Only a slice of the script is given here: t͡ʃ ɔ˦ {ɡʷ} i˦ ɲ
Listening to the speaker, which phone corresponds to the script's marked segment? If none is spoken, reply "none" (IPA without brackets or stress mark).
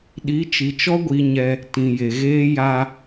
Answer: ɡʷ